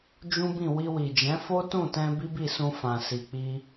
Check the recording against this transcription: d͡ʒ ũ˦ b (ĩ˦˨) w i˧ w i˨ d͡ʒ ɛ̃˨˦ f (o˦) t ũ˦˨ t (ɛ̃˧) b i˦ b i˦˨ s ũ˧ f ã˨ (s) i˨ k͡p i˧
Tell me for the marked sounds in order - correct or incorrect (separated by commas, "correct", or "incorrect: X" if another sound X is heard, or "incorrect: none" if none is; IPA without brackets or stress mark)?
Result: correct, correct, correct, correct